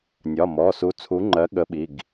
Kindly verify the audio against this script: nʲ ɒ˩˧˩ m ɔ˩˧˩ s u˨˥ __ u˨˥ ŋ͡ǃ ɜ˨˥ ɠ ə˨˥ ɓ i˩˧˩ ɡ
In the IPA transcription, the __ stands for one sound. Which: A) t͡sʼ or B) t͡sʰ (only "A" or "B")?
B